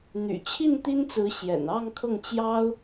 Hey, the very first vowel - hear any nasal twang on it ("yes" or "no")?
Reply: no